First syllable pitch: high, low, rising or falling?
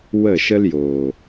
falling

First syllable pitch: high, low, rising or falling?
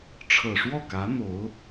low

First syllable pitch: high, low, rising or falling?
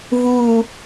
falling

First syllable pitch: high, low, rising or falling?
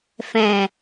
low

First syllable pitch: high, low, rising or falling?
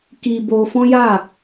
high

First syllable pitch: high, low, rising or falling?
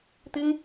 high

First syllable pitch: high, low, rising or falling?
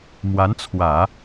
rising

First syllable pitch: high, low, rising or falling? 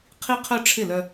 high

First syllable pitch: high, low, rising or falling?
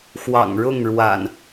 low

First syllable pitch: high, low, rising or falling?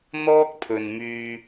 high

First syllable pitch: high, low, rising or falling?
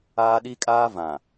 high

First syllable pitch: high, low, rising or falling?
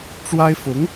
high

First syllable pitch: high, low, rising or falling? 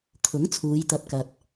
rising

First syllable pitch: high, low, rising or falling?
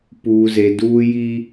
low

